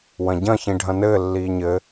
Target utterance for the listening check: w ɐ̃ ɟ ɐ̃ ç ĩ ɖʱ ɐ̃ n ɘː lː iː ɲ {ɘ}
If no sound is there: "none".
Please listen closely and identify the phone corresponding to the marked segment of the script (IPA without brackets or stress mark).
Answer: ɘ